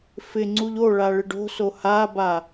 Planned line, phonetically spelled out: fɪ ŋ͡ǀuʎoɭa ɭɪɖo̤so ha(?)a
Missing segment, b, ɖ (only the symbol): b